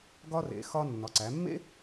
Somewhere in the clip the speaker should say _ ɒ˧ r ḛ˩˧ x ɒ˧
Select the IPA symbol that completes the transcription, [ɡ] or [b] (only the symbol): ɡ